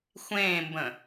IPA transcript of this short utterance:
xʷẽːmbə̃

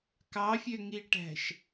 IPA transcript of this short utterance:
kɑfʲøŋiʈæ̤ʃ

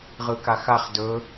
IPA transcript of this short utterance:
ʁɯkaxaχ dɵ

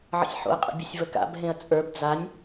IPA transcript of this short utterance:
ʕə̰sʲħo̰ɐ̯qʼə̰ bʲəsʲvəka̰bɦẽɐ̯ t͡sʼə˞b d͡zanʲ

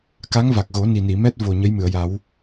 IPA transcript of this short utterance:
ka˧˥ŋva˨˩k̚ɣo˨˩˦ ni˨˩ni˨˩˨mɛ˦˥t̚ vo˨˩ ɲə˧˥jmɨ˨˩˨ə̯ja˨˩˦w

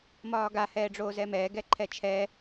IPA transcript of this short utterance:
mɒːɡa hɛːɖ͡ʐoːzɛmɛː ɡɛǃʰɛt͡ʃʰɛ

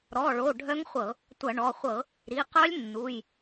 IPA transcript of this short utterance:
ɾɔ˩˧˩ɭo˩˧˩ ɖʱœ˦˥ŋχʷɤ˧˩˧ | tʷɐ˧˩˧ɳɔ˩˧˩ χʷɤ˧˩˧ | ɾi˩˧˩qœ˦˥lʲ nːu˩˧˩j

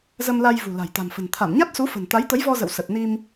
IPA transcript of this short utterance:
zə˧mla˧j vṳ˨˩la̤˨˩j t̪a̤˨˩mfə̤˨˩n t̪ʰa˧˩mɲa˦˥t̚su˨˦ fə̤˨˩nt̪a˨˦jt̪ə˨˦jvɔ˧ zə̰˧˨wsə˨˩t̚ni˧m

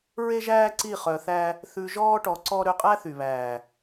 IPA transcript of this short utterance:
ɹe˦ʒæː˦ǀi˦˨ χœ˧θæ˦ | θʉ˧ʒɔː˦ ʈɔ˧ǀɔ˦ ɾø˧qʼæ˦θy˨βæː˨

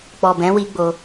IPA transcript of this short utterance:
k͡pɔ˨bɛ̃˨˦wi˧ ɡ͡bo˧

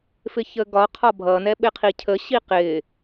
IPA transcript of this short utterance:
fɪçəɡɒ qʰɒbʱʌ nɛɓɪqʰicʰə ɕiqɪ

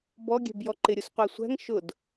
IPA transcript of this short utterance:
bɔɡʲɛ̤bjɔ ǃɪɾʲusqʷæ sʷæ̤ŋ ʃʊd

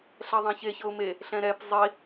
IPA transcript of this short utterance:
ɬɛðˤɛ̃çe çɤʊ̯me | ɬɛ̃ɾɛp zˤi

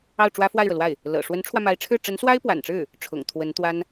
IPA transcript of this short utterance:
ɑ˥˩ʊ̯ʈ͡ʂwä˥fwa˥˩ɪ̯ɻɤ˩ lwa˥˩ɪ̯ | lɤ̰˨˩ ʂwə˧˥nʈ͡ʂʰwä˧ma˧˥ɪ̯ʈ͡ʂʰɻ̩˥˩ ʈ͡ʂə˧˥nswa˥ɪ̯pwa̰˨˩nʈ͡ʂɻ̩˥˩ | ʈ͡ʂʰʊ̰˨˩ŋ t̪ʰwə˧˥nt̪wa˥n

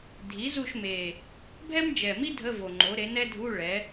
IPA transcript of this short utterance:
dʱi˩˥zu˦˨ʃme˨˩ | bʱɛ˥md͡ʒɛ˨˩mi˥ dʱə˧˥˧vo˨˩ŋ͡ǃo˩˥ ɾe˩˥nɛ˥dʱu˧˥˧ ɭɛ˩˥

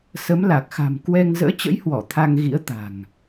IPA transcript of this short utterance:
sə˨˦mla˨˩k̚xa̤˨˩m kwɛ˧ŋ zə̰ː˧˥t͡ɕə̰˧˥jhwɔ˧˩ t̪ʰa˧ŋɣḭ˧˥ə̯ t̪a̤˨˩ŋ

